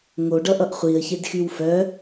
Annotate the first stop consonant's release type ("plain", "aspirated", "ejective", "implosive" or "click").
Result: plain